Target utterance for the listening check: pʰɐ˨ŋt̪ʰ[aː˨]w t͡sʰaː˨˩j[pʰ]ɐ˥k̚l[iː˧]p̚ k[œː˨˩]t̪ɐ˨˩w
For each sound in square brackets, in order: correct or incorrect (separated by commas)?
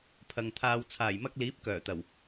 incorrect, incorrect, incorrect, correct